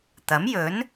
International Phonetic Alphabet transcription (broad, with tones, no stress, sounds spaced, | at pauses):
t̪ ɐ˨˥ m j ɵ˨˥ n